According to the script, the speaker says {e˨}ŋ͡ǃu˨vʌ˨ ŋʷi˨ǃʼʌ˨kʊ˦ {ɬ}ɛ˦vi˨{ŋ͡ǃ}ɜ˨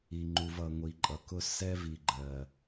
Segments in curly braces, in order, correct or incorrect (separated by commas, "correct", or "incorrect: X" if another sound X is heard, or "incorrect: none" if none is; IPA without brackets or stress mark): incorrect: i˨, incorrect: s, incorrect: ɡ͡ǃ